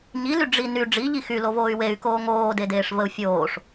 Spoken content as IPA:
ɲ i l y ɖ͡ʐ i n y ɖ͡ʐ i ʎ i x y l o v oː y̯ w e y̯ k oː ŋ oː d e d eː ʂ v ə u̯ fʲ oː ʂ

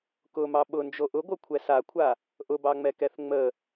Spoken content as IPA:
k ʊ m ɑ ɓ ʊ n d͡ʒ o ʔ ʊ ɡʷ ɤ kʷʰ ɛ s a kʷʰ a | ʔ ʊ b ɑ ŋ͡m ɛ k ɛ θ ŋ͡m ə

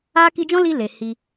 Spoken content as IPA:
a˦ k i˧ d͡ʒ ɔ̃˦ l i˧ l e˨ h i˧

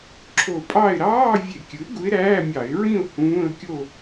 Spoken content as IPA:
ǁʰ o˧˩ pʼ ɑ˥˨ ɪ̯ ɾ ɑː˧˥˧ vʲ e˧˩˧ kʲ ɯ˩˥ ɪ̯ ɡ u˧˥ ɪ̯ ɾ æː˧˥˧ mʲ ɑ˧˩˧ ɪ̯ ɹ ĩ˥˨ ʊ̯ h ũː˧˥˧ ə̯ kʲ o˥˨

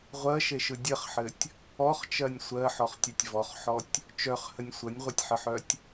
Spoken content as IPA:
ʁʷ ɜ ʃ e ʃ ɯ dʲ ə χ ħ ɘ tʲ | ɔ χ t͡ʃ ɜ nʲ sʷ ɜ ħ ɔ χ tʲ œ tʲ v ɔ χ ħ ɔ tʲ | t͡ʃ œ χ h ə nʲ sʷ ə nʲ ʁʷ ɘ tʲ ħ ə ħ œ tʲ

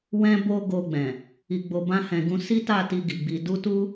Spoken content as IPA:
w ɛ̃˦ b o˦ ɡ o˧ ɡ͡b ɛ̃˨ | i˧ ɡ͡b o˧ b ã˦ h ɛ̃˧ ɡ ũ˦ s i˦ t a˦˨ t i˧ ɡ i˨ ɡ͡b i˧ d u˦ t u˦

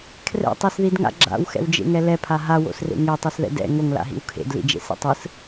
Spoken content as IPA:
kʰ r ɛ̰ tˤ i s ð i d ŋ a̰ ɡ͡ǁ a̰ w x ɛ̰ w d͡ʒ ḛ ŋ ɛ l ɛ pʰ a ɦ a w o̰ s r ḛ ŋ e tˤ ʌ s ð ɛ̰ d ɛ̰ ŋ o ŋ l a̰ ɦ ḭ w kʰ ḛ d l ḭ d͡ʒ ḛ s ɛ̰ tˤ ɯ s

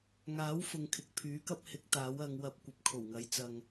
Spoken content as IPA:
ŋ aː˨˥ w f ʊ˧ ŋ kʰ ɪ˨ k̚ pʰ yː˨˥ k ɐ˥ p̚ h ɪ˨˥ k̚ t̪ aː˨˥ w ɐ˨˧ ŋ w ɐ˧ p̚ kʷ ɐ˨ p̚ kʰ o˨˩ w ŋ ɐ˨˥ j t͡s ɐ˧ ŋ

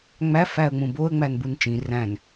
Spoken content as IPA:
ŋ͡m æ f æ ə̯ ŋ͡m ũ b o ə̯ ŋ͡m æ n b u n t͡ʃ ĩ r æ̃ n

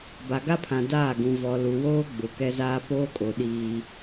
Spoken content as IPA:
b a˨ ɡ a˦ pʰ ã˨ d aː˦˨ ɡ ũ˨ v ɔ˨ l u˨ w oː˦ ɡ͡b ʊ˨ k ɛ˦ z aː˦ p oː˦ kʼ o˨ ɗ iː˦

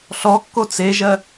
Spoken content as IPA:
ɬ ɔ kː o t͡s e ʒ ɜ

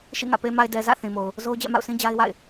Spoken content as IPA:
ʃ ḭ˦˨ ŋ ä̰˦˨ p e˨ m a˨ ɪ̯ d ɛ˨ z ä̰˦˨ θ ĩ˨ m o˨ ʊ̯ | z o˦ ʊ̯ d͡ʑ ɛ̰˦˨ m a̰˦˨ ʊ̯ s ĩ˦ d͡ʑ a˦ ɪ̯ w a̰˦˨ ɪ̯

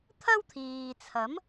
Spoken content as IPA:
t̪ʰ ɐ˥ w t̪ʰ iː˨ t͡sʰ ɐ˨˥ m

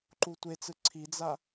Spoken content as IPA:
ǃ u tʷ e t͡s ɯ ǀʰ i d͡z a

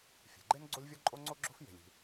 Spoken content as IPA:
fʲ e̤˩ ɡ͡ǃ e˥ n ɡ͡ǀ o˥ lʲ vʲ ɔ˥ ǃʼ o˥ ŋ͡ǀ o˥ ɡ͡ǁ o̤˥ f j e̤˩ lʲ i̤˩

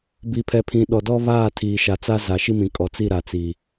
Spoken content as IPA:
b i˨ pʰ ɛ˨ pʰ ĩ˨ ɗ ɔ˨ d ɔ˦ β aː˦˨ tʰ iː˨ ʃ a˨ t͡s a˦ z a˨ ʃ i˦ m ĩ˨ kʼ ɔ˨ t͡s i˦˨ ɾ a˨ t͡s iː˨

